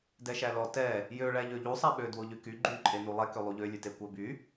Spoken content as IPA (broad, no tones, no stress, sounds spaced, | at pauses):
d ɛ ʃ æ l ɔ t ɛ | j ø ɭ æ ʎ ø ʎ u sˤ æ ɓ ø d w o ʎ y k y ɡ͡ǃ y ǃʼ e n u lˠ ɛ k ø lˠ u ʎ ø lʲ ʉ t e kʷ æ b y